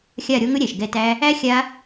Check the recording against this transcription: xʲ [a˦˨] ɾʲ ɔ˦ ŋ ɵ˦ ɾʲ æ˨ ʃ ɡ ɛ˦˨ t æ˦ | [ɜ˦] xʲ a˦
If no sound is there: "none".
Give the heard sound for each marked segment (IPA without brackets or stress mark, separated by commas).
a˦˨, æ˦